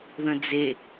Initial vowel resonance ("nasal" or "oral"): nasal